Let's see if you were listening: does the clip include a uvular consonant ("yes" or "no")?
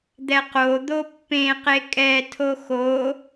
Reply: yes